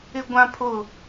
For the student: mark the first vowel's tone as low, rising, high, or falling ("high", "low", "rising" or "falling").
high